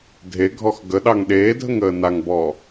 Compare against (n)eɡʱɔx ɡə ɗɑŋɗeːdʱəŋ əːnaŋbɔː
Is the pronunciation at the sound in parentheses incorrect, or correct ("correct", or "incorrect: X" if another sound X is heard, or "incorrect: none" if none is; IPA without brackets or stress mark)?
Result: incorrect: dʱ